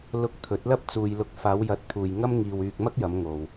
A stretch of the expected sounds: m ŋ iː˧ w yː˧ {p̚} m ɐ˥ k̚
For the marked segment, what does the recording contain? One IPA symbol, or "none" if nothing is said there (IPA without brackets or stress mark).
k̚